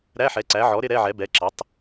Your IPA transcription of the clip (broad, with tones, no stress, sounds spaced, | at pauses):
ɾ æ˧˥˧ ħ ɛ˩˥ ǀ æ˩˥ ʕ ɔ˩˥ ɾ ɪ˧˥˧ ɾ ɛ˧˥˧ ʕ ɛ˩˥ b ɛ˩˥ ǁ ʌ˩˥ tˤ